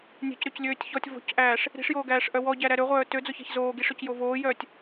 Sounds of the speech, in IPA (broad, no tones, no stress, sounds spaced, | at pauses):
nʲ ɛ̤ c ɾ ø c lʲ øː tʲ ç ɔ tʲ v o̤ c ʔ æː ʂ | ɾ i̤ ʂ j oː ɡ æː ʂ ʔ œ w ɔ ɟ æ ɾ æ ɾ ø ʁʷ œː t ø d͡z o ç ɛ̤ ç z oː ɡ i ʂ ø c j o v oː j œː tʲ